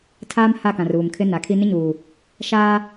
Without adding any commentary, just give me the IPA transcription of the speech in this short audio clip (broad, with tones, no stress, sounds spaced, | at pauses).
tʰ aː˦ m h a˦˨ k ã˨ r uː˨ m kʰ ɪ˦ n a˨˦ kʰ i˦ n ɪ˦ ɲ uː˨ | ʃ aː˦